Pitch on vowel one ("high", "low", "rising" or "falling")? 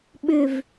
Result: falling